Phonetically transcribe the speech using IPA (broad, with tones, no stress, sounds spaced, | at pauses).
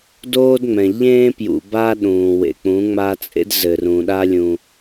d oː˦ d ŋ͡m ɛ̃˨ ʎ ẽː˦ p j ṵ˨ b a˦ ɗ ũː˨ w ḛ˨ k͡p ũ˨˦ ŋ͡m a˦ t͡sʼ ḛ˦ d z ɘ˨ r ũ˨ ɗ a˦ lʲ ũ˦